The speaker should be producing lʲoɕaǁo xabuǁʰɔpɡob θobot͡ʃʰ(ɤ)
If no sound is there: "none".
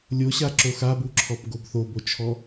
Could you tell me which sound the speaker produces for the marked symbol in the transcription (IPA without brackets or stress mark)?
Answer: ɔ